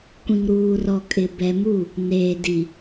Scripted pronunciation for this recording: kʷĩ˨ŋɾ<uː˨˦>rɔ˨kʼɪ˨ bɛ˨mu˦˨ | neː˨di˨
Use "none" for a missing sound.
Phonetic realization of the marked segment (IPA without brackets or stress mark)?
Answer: uː˨